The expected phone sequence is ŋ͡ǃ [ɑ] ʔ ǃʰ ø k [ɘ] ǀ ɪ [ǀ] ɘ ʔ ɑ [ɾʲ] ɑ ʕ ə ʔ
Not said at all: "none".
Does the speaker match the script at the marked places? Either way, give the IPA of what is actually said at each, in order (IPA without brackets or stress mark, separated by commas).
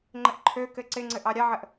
ə, ɘ, ŋ͡ǀ, ɾʲ